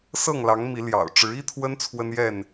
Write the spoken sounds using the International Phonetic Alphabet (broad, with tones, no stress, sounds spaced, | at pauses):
s ɤ˥˨ ŋ l ɑ˨˦ ŋ m i˨˦ l j ɑ̰˨˩ ʊ̯ ʈ͡ʂ ɻ̩˨˦ i˦ t̪ʰ w ə˦ n t͡sʰ w ə˦ n j ɛ˥˨ n